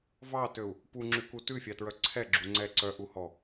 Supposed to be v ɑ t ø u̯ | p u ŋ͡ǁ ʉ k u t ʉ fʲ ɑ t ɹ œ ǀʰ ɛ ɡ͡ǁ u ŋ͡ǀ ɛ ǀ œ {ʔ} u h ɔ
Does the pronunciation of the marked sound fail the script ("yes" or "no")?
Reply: no